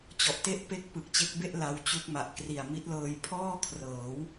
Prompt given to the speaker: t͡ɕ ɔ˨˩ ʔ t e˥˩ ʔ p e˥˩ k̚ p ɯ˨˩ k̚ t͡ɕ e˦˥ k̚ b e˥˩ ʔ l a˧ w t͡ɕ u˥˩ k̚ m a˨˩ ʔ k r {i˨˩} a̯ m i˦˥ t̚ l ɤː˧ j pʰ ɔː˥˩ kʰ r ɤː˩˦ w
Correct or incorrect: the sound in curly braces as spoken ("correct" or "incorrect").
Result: correct